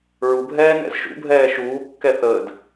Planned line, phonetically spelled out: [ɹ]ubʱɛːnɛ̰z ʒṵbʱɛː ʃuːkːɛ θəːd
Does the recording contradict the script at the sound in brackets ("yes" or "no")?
no